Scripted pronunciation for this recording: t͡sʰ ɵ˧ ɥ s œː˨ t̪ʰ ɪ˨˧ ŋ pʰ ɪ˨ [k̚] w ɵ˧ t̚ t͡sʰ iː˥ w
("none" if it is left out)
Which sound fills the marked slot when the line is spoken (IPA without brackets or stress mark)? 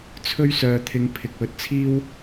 k̚